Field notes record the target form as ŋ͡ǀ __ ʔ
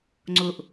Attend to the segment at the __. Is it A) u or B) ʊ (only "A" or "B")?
B